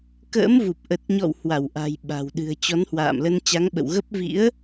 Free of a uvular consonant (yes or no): yes